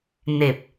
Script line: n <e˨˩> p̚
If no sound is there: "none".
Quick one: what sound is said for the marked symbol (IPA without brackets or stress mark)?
e˨˩